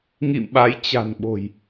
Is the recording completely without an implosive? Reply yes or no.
no